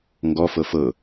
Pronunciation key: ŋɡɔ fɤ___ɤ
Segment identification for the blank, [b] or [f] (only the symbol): f